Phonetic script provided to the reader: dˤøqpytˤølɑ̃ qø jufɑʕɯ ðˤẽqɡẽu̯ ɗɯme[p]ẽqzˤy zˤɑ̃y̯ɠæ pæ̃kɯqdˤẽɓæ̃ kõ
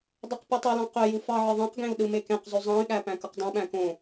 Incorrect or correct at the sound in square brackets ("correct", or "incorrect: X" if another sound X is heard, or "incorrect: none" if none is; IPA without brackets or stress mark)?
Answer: incorrect: k